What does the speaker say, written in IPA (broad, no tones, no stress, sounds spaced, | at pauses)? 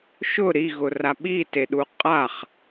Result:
ʃ ʊ ɾ i ɣ ʊ r a ɓ i t e ɗ u qʼ a χ